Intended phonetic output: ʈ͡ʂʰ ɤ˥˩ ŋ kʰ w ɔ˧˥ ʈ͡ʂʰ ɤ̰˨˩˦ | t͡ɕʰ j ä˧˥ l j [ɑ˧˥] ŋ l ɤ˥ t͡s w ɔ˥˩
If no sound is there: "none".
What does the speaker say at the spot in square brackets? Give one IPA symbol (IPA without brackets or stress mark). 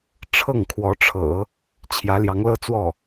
ɑ˧˥